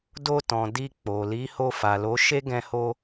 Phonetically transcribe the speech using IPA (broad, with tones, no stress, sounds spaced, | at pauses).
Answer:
d o˧ t ɔ̃˨ d i˧ k͡p o˨ l i˨˦ h o˧ f a˨ l o˨˦ ʃ e˦ ɡ ɛ̃˧ h o˧